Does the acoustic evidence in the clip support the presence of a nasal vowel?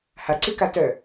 no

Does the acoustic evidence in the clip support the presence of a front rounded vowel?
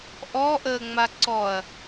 no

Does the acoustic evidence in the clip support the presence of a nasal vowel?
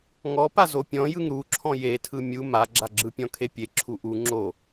yes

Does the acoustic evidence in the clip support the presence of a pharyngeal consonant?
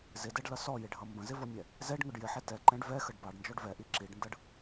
yes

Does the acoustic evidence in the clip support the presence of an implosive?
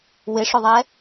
no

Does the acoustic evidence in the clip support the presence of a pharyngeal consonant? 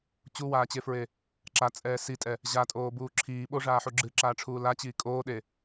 yes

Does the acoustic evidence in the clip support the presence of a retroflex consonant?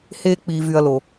no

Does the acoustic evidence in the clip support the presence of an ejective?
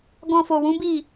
no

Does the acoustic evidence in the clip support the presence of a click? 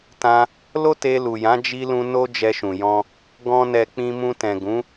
no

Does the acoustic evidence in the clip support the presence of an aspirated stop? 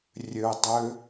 no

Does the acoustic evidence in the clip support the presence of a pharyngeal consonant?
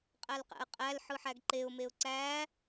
yes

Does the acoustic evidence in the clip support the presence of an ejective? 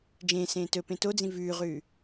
no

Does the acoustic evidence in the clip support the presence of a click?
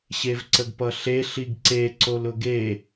yes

